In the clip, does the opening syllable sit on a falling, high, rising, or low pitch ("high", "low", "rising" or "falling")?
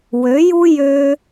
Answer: rising